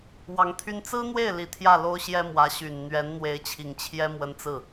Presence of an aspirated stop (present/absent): present